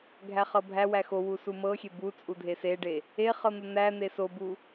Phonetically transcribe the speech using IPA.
ɡʱ æ χ ɤ bʱ æ w æ x o w u s u m ɤ xʲ e b u t͡sʼ u dʱ e s e ɖ e | e χ ɤ n̪ o n̪ æ n̪ e s o b u

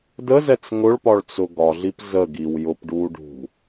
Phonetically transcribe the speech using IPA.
d ə z ɛ t͡s ŋ ʊ ɭ p ɒ ɭ t͡s ʊ ɡ ɒ ɮ i p z ə ɡ i w j ʊ p ɖ uː ɖ ṳ

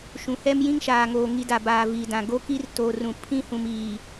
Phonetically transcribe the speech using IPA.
ʃ ũ˨ h ɛ˦ m j ĩ˦ ŋ ʃ aː˨ ŋ oː˨ ŋ i˨ d a˨ b aː˨ v iː˨ d ã˨ ɡ o˦ k i˦ r t oː˨ r ũ˨ pʰ ĩ˦ h ũ˨ m iː˨

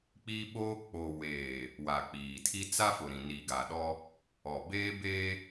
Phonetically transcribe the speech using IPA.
k͡p iː˦ ɓ oː˦ k͡p oː˨ w eː˨ | w a˨ k͡p iː˨ tʰ i˦ t͡s a˦ f ʊ˨ ɾ ĩ˨ n iː˨ ɡ a˨ ɗ ɔ˦ | ɔ˨ b eː˦ b eː˦

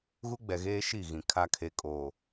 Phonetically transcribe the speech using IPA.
ɣ u˦ ɡ͡b ɛ˨ ɣ eː˦ ʃ i˦˨ ɣ ĩ˨ kʰ a˨ kʰ e˨ kʼ oː˨

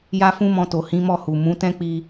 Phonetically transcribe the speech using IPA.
j a˦ f ũ˦ m ɔ̃˧ t o˨ h ĩ˨˦ m ɔ˦˨ h u˨ m ũ˨˦ t ɛ̃˦ k͡p i˧

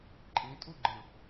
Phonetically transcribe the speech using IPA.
ǃʼ ĩ tʼ u ɡ͡ǃ ɯ

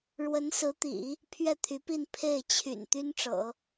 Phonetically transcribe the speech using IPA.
ɻ w ə˧˥ n s ɹ̩˧˥ t̪ ḭ˨˩˦ | pʰ ɥ ɛ˥˩ t̪ʰ y˧˥ p i˥˧ n pʰ e˥˩ ɪ̯ t͡ɕʰ y̰˨˩ n t̪ y˥ n ʈ͡ʂ ɤ̰˨˩˦

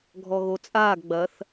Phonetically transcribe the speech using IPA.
ɡʱ ɔ ɣ o t͡sʼ aː ɡ ɡ͡b ɐ θ

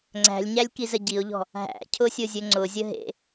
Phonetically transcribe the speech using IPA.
ŋ͡ǀ æ̤ lʲ ɲ æ lʲ k i z ə ɟ i ʊ̯ ʎ ɔ̤ | ɦ æ̰ cʰ ʊ sʲ ʊ zʲ ɵ ŋ͡ǀ ʊ zʲ ə ɦ ḛ

